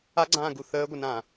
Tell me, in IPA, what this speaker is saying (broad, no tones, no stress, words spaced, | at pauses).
aɡ͡ǀãːɡu θəːɡʷənãː